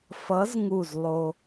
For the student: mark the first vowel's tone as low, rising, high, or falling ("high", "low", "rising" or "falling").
rising